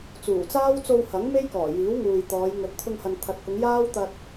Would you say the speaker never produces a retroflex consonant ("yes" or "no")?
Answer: yes